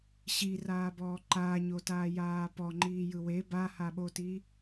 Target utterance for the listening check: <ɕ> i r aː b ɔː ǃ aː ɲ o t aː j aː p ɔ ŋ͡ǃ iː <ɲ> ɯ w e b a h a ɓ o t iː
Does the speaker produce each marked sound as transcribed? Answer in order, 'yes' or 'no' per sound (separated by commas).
yes, no